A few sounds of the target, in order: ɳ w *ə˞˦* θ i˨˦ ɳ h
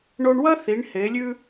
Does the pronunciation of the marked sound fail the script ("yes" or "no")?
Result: yes